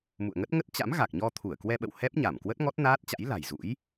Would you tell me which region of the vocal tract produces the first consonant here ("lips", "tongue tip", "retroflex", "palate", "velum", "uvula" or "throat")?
lips